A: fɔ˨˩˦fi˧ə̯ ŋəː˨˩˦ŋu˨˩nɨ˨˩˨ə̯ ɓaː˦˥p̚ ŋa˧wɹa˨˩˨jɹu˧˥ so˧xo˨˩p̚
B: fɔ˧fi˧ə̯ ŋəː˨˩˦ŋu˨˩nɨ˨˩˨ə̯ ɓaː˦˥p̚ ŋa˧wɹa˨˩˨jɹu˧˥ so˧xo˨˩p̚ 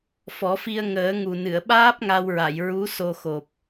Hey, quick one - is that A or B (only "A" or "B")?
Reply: A